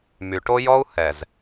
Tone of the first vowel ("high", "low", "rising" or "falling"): low